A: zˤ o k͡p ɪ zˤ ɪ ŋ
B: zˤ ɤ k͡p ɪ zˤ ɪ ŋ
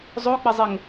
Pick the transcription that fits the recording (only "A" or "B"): A